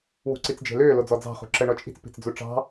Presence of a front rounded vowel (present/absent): present